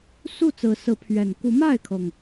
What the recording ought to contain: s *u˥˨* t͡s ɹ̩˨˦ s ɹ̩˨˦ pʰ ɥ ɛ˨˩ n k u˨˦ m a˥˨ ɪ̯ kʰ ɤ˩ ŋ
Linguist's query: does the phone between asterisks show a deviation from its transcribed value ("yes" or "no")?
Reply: no